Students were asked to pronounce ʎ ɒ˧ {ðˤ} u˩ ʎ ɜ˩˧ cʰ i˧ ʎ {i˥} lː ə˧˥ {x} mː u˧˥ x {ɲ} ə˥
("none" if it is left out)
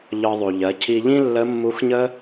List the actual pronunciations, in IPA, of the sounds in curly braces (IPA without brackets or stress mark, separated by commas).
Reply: ðˤ, ĩ˥, none, ɲ